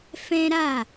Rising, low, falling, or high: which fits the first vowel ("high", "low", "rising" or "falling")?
high